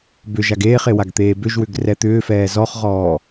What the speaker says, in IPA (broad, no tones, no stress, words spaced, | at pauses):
bʏʒaɡ eːχewaɡt̪eː bʏʒwʏɡrɛ t̪ʏːfɛː zɔχʁɔː